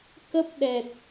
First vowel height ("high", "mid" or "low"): mid